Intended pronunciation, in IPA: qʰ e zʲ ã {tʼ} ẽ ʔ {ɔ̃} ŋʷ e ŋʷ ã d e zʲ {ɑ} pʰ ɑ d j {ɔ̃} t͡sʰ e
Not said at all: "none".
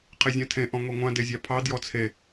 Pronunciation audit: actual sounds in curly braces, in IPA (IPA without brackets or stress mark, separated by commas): tʰ, ɔ̃, ɑ, ɔ